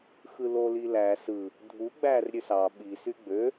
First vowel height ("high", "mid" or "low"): high